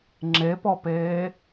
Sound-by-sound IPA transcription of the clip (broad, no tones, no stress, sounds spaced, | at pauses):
ŋ͡ǁ e p ɔ p eː